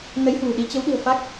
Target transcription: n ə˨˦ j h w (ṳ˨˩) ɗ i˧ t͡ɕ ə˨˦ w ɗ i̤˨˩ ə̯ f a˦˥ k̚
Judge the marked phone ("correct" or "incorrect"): correct